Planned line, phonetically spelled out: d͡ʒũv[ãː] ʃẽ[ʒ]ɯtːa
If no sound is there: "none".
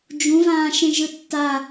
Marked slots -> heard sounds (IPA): ãː, ʒ

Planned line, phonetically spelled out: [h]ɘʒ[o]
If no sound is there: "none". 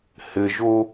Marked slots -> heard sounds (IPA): h, o

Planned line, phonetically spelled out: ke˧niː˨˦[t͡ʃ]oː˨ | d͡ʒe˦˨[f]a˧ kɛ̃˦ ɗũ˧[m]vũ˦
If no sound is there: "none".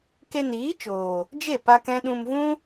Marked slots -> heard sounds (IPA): t͡ʃ, p, m

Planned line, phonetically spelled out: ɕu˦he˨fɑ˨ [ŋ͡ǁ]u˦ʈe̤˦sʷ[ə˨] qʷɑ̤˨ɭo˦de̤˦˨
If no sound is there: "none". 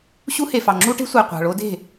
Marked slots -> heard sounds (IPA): ŋ͡ǁ, æ˨

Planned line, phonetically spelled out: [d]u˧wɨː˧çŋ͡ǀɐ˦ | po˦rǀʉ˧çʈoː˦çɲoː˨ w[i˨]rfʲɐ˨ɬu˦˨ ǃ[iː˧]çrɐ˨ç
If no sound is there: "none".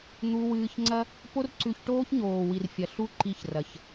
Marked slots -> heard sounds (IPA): n̪, i˨, i˧

